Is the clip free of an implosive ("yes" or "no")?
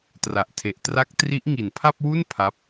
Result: yes